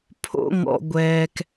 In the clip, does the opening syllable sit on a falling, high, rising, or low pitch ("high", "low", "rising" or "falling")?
high